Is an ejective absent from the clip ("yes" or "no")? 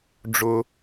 yes